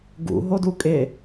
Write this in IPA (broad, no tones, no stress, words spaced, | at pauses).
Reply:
ɡṵ ɦodukʼɪ